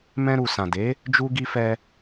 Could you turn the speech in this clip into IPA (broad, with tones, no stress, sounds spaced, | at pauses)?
m ɛ̃˧ ɾ u˨ s ã˨ d e˨˦ | d͡ʒ u˧ ɡ i˧ f ɛ˧